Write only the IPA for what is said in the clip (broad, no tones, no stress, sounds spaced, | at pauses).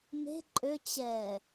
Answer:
m e̤ ǃʼ ø t͡ɕ ɛ